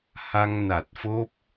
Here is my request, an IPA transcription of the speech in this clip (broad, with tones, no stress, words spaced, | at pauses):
ha˧ŋna˨˩t̚fo˦˥p̚